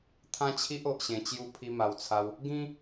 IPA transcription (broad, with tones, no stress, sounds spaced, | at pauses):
t̪ʰ ã˦ t͡ɕʰ i˦ ʔ o˨ ʔ ɕ ẽ˨˩ t͡ɕ j u˧ pʰ i˧ m a˨˩ w t͡sʰ a˧ w | ɡ ĩ˦